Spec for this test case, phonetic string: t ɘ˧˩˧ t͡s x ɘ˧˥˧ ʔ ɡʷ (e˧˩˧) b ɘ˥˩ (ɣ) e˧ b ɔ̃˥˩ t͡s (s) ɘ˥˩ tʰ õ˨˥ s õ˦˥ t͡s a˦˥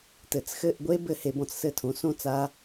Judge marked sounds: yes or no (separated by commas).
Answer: no, no, yes